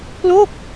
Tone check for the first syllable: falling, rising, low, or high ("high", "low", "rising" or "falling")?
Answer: falling